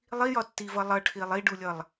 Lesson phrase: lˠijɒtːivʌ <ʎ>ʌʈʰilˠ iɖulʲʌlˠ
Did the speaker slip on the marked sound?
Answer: yes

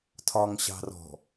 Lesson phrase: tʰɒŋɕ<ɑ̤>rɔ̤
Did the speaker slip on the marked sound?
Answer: no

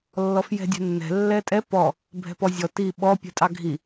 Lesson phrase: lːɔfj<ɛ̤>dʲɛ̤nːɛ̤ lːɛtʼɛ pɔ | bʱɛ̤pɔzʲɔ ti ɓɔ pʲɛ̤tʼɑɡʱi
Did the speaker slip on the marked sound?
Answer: no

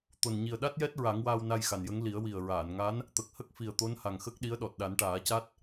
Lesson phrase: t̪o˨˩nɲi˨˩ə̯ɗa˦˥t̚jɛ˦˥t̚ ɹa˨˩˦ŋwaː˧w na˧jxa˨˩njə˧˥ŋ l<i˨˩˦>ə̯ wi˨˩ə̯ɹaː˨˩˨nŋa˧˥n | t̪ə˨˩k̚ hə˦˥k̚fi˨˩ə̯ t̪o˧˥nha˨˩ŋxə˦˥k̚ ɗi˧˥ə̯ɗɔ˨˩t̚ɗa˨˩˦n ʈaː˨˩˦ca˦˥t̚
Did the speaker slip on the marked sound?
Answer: no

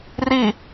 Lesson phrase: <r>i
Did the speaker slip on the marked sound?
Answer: no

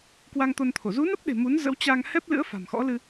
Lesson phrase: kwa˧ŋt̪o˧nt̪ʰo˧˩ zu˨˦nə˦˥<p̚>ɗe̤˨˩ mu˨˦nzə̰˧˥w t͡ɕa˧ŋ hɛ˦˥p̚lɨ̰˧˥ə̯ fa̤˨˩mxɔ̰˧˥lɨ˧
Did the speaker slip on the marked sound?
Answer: no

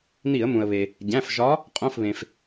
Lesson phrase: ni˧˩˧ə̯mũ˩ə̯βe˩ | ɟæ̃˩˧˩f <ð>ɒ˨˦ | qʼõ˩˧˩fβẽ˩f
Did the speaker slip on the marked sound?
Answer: yes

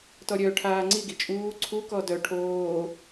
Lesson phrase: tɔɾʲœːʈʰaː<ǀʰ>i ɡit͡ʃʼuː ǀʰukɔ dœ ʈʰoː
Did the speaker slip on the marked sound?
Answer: yes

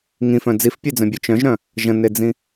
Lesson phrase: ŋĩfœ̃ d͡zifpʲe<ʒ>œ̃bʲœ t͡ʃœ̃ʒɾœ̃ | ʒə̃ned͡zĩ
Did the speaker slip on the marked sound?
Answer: yes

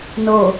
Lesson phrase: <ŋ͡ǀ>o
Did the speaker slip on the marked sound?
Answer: yes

